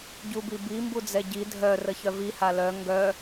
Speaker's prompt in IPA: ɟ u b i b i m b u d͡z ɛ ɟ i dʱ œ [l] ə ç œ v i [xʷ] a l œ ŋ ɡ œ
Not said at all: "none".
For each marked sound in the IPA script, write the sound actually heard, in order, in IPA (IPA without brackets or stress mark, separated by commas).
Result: r, h